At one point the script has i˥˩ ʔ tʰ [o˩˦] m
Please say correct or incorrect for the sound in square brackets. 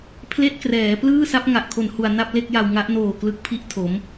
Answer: correct